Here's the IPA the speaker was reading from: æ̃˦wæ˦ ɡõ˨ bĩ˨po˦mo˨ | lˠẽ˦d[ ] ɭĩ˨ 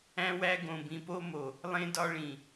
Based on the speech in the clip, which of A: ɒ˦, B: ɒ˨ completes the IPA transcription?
A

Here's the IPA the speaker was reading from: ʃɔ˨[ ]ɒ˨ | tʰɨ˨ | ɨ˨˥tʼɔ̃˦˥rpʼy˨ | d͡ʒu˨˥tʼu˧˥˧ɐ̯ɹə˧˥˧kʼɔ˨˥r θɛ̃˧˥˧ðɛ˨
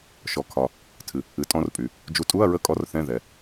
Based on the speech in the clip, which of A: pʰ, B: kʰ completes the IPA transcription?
B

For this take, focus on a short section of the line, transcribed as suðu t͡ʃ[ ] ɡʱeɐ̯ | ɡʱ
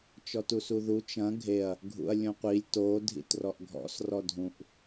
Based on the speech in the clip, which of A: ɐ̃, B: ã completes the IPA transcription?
A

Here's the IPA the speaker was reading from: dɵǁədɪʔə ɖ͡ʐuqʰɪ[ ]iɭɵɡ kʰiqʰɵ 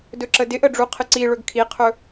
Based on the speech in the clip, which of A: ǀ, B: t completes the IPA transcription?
A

